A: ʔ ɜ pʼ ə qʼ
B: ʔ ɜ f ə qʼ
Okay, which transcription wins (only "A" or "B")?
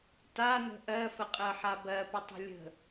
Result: B